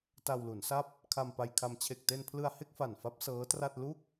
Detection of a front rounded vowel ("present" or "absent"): absent